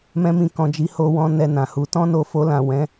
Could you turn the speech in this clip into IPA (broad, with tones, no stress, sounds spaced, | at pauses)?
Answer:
m ɛ̃˦ m ĩ˦˨ k ɔ̃˧ d͡ʒ i˧ h o˧ w ɔ̃˧ n ɛ˧ n ã˨ h u˨˦ t ɔ̃˦ n o˧ f o˧ l ã˨ w ɛ̃˨˦